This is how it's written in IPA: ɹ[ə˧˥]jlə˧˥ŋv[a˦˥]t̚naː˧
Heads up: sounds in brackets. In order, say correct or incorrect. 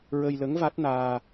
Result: incorrect, correct

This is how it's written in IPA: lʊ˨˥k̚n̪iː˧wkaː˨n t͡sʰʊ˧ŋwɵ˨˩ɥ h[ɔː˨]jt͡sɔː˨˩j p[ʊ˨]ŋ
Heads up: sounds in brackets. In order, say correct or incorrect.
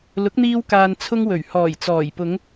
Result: incorrect, incorrect

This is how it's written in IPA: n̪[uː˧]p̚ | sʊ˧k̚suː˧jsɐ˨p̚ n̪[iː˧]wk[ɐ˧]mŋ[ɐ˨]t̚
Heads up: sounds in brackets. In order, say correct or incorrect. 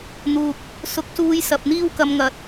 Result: incorrect, incorrect, correct, correct

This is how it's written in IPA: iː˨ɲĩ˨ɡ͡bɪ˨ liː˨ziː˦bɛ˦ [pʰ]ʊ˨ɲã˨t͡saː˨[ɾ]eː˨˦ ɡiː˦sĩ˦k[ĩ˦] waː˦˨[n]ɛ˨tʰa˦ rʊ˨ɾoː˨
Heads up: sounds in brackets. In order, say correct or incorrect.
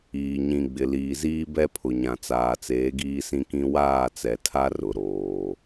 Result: correct, incorrect, correct, incorrect

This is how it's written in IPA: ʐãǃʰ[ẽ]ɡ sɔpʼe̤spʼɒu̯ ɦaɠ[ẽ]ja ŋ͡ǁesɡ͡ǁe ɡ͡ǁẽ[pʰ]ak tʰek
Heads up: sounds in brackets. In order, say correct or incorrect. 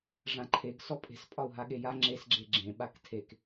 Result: incorrect, incorrect, incorrect

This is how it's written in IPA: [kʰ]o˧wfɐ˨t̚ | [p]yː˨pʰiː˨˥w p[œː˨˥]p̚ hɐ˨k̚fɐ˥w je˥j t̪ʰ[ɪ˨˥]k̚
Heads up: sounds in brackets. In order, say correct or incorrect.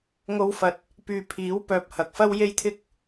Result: incorrect, correct, correct, incorrect

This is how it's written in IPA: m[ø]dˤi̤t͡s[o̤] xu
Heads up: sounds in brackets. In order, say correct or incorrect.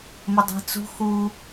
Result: incorrect, incorrect

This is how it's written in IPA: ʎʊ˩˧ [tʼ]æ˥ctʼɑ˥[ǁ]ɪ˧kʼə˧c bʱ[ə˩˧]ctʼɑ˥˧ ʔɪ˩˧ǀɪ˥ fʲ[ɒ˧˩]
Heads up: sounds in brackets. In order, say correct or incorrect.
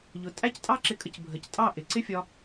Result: correct, correct, correct, incorrect

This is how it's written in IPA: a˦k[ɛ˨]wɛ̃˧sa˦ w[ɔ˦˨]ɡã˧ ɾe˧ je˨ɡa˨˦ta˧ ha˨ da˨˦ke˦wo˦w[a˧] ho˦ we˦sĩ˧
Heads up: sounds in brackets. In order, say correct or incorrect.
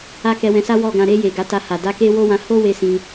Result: incorrect, correct, incorrect

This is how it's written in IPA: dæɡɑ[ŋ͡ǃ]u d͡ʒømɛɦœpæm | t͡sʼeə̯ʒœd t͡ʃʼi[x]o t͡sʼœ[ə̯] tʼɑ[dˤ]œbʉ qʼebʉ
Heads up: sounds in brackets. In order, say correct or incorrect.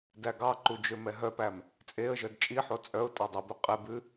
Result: incorrect, incorrect, incorrect, correct

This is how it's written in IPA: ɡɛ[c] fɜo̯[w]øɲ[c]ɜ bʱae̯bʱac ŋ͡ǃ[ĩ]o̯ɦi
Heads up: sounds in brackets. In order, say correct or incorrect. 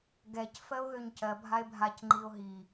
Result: correct, incorrect, correct, incorrect

